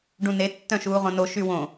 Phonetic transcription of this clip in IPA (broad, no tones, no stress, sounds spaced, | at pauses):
ɖ ũ n e tː œ̃ ʃ uː ʁ õ n o ʃ y w õ